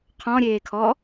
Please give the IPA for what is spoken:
qʰ ɔ̃ ɾʲ eː kʰ ɔ

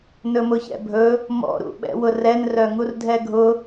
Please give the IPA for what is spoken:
n ɵ m ʊ ç ɛ̰ bʱ ɵ | m ɔ̰ ɾ ṵ ɓ ɛ̰ w ʊ r ɛ n r œ ŋ u r dʱ ɛ ɡʱ ʊ

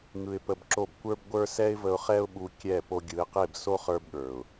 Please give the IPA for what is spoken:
ŋ ɯ˧ ɪ̯ p ə˧ b ǁ o˦˨ b kʷ ə˞˦ b ɡʷ ə˞˦ s ɛ˦ ɪ̯ v ə˧ ʊ̯ χ ɛ˦ ʊ̯ ɓ u˧ kʲ ɛ˦˨ p o˧ ɡʲ ɯ˨˦ ɪ̯ q e˦˨ b s o˦ χ ə˞˧ b ɠ ə˞˨ ʊ̯

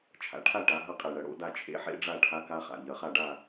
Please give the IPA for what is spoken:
t͡ʃʰ a̰˩˧ ʈʰ a˥˨ ʈ a˩˧ ɦ ɐ˦˥ qʼ e˨˩ ɳ ɐ˨˩ ɽ o̰˥˨ d a˥˨ t͡ʃʰ ḛ˦˥ ħ ḛ˦˥ ɖ͡ʐ a˥˨ ʈʰ a˦˥ k a˦˥ χ a̰˨˩ ʎ ɐ˩˧ χ a˥˨ ɖ a˥˨

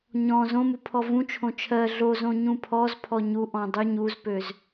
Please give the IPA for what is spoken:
ɲ ɔ̃ z õ m u pʰ ɔ v ũ t͡ʃʰ õ t͡ʃʰ ɜ ɮ o z õ ɲ ũ pʰ ɔ z pʰ ɔ ɲ u ʔ ɔ̃ dˤ ɯ ɲ u z p ø z

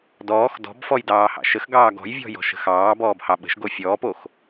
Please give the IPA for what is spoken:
d ɔː x d ɔ̤ b f ɔ j d ɑː h ɑ̰ ʃ ə x ɡ ɑː ɡ ɔ̤ j vʲ ɔ̤ j ɔ̤ ʃ ə̤ x ɑː b ɔː b h ɑ ɓ ə̤ ʃ ɡ o fʲ ɔː p o x

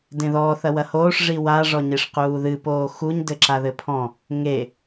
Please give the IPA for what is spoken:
d ẽ ð ɔ θ ɐ w ɐ h oː ʂ ʐ i w a ʐ ɔ ɲ e ʂ q uː ð ɨ p oː x u ɲ d ɘ ǁ a ð ɘ pʰ ɔ̃ | ŋ e

